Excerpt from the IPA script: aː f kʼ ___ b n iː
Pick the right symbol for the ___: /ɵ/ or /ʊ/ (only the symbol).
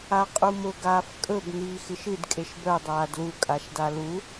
ɵ